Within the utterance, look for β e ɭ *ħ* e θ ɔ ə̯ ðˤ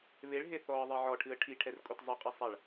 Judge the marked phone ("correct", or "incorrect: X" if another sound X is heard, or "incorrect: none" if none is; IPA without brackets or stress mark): incorrect: ɦ